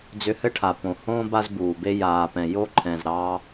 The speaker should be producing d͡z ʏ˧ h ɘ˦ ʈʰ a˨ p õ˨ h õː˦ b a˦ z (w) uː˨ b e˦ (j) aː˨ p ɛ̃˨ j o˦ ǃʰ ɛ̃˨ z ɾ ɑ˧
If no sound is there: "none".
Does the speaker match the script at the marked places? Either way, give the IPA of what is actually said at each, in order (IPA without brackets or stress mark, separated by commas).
b, j